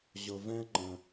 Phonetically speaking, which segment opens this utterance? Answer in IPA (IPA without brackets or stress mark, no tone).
ʑ